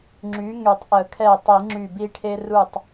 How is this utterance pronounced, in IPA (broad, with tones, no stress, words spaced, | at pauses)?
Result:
ŋ͡ǁy˨˥ŋy˨˩˦tˤʔə˨˩˦kʰɛ˧˩ tˤi˨˩˦ŋ͡ǁy˧˩bi˦ʈʰe˦ ru˧˩tˤ